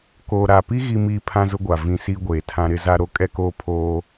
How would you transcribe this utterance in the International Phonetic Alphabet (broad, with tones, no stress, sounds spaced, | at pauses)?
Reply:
k oː˨ ɾ a˨ p i˦ ɣ i˦ m iː˦ pʰ ã˦ z ʊ˦ ɡʷ a˨ v ĩ˦ s iː˦ ɡʷ eː˨ tʰ ã˦ ɾ ɪ˦ z a˦ ɾ o˦ kʼ ɛ˦ k oː˦ pʰ oː˦